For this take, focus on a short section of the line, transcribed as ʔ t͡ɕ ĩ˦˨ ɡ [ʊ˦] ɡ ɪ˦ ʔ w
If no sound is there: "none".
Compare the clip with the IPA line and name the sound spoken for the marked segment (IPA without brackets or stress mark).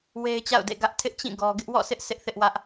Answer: ɔ˦